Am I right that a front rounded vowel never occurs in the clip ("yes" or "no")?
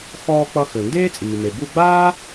no